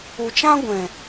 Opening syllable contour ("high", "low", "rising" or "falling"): low